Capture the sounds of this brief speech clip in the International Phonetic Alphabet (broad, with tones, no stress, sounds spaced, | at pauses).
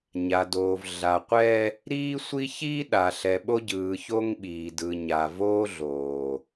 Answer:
ɲ a˨ d oː˨ v ɮ a˨ qʷ ɛ˦ | ɾ iː˦ sʷ i˦ ç iː˦ ɗ a˨ ɬ ɛ˨ ɓ o˦ ɟ ɯː˨ ç o˦ ŋ ɓ iː˨ d ɯ˨ ɲ a˨ v oː˦ ɮ oː˨